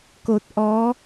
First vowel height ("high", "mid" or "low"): mid